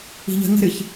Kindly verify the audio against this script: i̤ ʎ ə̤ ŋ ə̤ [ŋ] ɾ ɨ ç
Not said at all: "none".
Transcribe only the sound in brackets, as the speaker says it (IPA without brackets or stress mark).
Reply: none